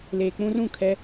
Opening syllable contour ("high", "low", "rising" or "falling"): low